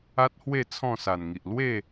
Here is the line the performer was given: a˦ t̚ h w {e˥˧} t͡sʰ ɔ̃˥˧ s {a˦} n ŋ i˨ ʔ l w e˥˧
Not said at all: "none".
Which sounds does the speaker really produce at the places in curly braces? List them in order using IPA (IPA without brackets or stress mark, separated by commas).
e˥˧, a˨˩